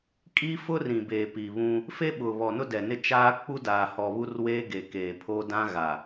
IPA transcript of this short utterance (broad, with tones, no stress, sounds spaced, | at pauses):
kʼ i˦ f ʊ˦ r ĩ˨ b eː˨ p i˨ β ũ˦ | f e˦ ɓ ʊ˨ β ɔ˨ n ʊ˦ d ɛ˨ n ɪ˦ t͡ʃ aː˦ k͡p u˦ d aː˨ h ɔ˨ β u˦ r w eː˦ ɡ e˨ k eː˨ pʰ oː˦ d ã˦ ɣ a˨